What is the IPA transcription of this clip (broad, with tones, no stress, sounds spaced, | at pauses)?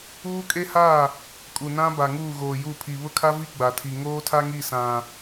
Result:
uː˦ kʼ e˦ h a˦˨ | kʼ u˨ n ã˦ b a˨ ŋ uː˦˨ ɣ oː˨ j u˦˨ pʰ i˨ β ʊ˦ kʰ a˦ v i˦ ɡ͡b a˨ tʰ i˨ ŋ oː˦ tʰ a˦ ŋ i˦˨ s ã˨